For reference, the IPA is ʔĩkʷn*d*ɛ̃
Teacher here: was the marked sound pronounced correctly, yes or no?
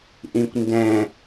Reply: yes